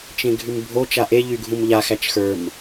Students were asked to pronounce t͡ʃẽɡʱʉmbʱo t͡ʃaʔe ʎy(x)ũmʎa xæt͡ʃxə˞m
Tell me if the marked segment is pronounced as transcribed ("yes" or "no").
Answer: no